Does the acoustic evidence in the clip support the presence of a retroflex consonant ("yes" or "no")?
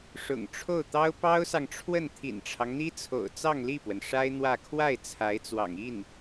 yes